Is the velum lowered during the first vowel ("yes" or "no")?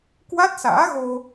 no